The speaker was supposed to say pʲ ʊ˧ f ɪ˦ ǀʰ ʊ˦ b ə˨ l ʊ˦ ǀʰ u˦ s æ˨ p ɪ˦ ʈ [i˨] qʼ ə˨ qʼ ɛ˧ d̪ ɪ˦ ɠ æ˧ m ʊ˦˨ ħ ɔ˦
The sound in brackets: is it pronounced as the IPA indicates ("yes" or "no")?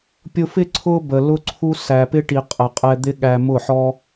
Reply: yes